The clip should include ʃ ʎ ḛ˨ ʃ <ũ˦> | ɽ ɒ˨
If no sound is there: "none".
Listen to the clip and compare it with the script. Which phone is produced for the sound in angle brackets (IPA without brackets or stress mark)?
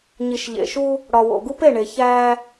u˦